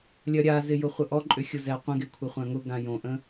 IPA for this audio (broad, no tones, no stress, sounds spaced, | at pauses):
lʲ ɐ ɾʲ a z ɪ j ʊ χʷ ə ʔ ɔ ǃʼ ʏ xʲ ʊ z ɛ qʷ ə̃ ɡ e kʷʰ ɪ χʷ ã ŋ ʊ ɡ ã j õ ʔ ə̃